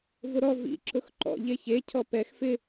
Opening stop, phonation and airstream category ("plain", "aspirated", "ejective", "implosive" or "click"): click